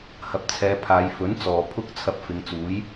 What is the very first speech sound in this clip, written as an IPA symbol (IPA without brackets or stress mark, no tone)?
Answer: h